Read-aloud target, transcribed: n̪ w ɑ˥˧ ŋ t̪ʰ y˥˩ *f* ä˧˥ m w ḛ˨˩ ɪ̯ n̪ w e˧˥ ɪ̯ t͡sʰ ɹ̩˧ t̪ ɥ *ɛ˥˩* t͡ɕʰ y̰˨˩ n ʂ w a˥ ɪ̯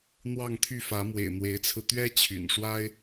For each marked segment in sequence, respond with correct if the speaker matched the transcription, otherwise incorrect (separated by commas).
correct, incorrect